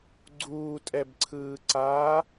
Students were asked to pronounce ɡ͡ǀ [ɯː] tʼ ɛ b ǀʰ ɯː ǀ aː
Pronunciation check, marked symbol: incorrect: uː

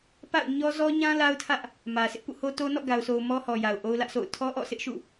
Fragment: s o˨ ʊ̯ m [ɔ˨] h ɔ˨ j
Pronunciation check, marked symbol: incorrect: ɔ˦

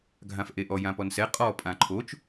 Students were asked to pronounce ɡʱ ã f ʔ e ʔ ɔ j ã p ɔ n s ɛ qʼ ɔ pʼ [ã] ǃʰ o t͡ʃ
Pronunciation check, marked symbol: correct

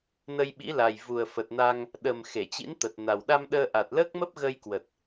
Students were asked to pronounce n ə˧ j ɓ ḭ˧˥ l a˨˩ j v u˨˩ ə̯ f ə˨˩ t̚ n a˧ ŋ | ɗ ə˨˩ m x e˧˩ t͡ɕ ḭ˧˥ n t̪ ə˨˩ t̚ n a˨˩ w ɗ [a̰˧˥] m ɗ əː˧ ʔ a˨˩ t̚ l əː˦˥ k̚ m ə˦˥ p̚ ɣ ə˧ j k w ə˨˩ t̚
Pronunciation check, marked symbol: incorrect: a˧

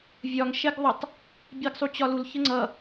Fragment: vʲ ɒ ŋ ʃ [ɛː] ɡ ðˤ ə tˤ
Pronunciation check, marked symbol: incorrect: ɛ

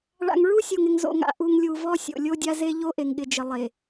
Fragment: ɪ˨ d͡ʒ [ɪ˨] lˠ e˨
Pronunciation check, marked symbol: correct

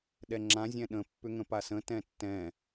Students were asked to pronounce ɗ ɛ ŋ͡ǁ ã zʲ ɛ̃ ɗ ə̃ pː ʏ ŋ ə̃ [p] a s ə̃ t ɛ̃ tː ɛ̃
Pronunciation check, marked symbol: correct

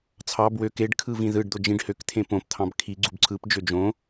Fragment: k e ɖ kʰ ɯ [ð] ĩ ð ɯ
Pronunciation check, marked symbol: incorrect: v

